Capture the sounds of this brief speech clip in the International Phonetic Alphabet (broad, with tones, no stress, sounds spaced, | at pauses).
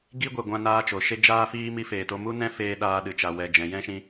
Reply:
ɡ i˦ ɡʷ e˨ ɡʷ ã˧ n aː˧ t͡ʃ o˨ ʃ e˦ d͡ʒ aː˧ f iː˧ m i˧ f eː˨ t o˧ m u˦ n ɛ̃˧ f eː˧ ɗ aː˧ ɗ ɨ˨ t͡ʃ a˨ w ɛ˨ d͡ʒ ɛ̃˨ j ɛ̃˦ ʃ ĩ˧